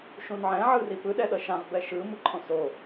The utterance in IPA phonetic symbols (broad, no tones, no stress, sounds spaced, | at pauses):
ʃ ũ n ʕ ɛ̃ ʕ ɯ r i p ɯ ɗ ɛ ɗ ʌ ʃ ã ʁ b ɛ ʃ ɯ m ɯ ǃʰ õ s o